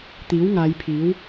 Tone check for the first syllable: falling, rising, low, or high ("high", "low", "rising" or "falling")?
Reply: rising